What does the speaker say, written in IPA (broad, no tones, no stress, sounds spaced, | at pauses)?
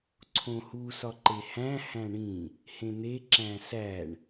ǀʰ õ h u s ɒ ǃ e h æ̃ h æ̃ ɳ ĩ | h ẽ n̪ e ǁ æ̃ s æ ɳ